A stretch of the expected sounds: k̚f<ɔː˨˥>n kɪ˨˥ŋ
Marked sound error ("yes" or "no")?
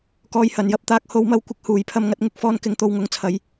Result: yes